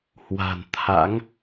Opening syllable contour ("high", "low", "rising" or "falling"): low